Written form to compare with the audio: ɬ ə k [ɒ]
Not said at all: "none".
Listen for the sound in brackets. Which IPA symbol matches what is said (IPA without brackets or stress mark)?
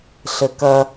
ʌ